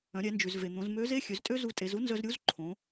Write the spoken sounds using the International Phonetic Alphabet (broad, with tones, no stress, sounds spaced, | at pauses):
œ̃˩˧ ɾʲ ɛ˩˧ n d͡ʒ ʉ˩ z v e˩ n̪ õ˩˧ z m ø˧˥ z e˥ xʲ ø˩˧ z tʼ ø˥ z u˧ tʼ e˩˧ z u˥ n z œ˧ z ɾʲ u˧˥ z ǃʰ õ˩˧